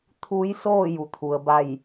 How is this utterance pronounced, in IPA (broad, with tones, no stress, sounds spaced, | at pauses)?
t̪ʰ uː˧˥ j s oː˥˨ j u˩ t̪ʰ u˩ ə̯ b a˥˨ j